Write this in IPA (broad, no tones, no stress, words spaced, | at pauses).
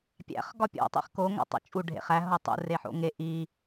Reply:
pʲæ̰χ ɡɒpʲo̰ tˤḭχko ŋæ̰tˤo̰t͡ʃʼu ɖʱḛχæ ɦotˤṵ reħo̰ŋe ʔi